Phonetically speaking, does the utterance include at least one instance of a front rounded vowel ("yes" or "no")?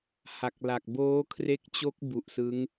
no